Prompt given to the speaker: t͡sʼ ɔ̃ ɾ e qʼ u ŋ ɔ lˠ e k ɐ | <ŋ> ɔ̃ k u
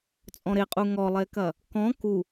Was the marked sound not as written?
yes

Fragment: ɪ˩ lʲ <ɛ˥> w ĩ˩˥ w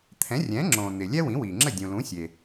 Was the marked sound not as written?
no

